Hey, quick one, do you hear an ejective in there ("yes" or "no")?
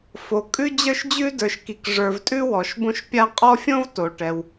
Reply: yes